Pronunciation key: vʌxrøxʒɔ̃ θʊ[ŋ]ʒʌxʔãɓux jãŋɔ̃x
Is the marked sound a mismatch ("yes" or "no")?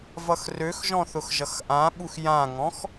yes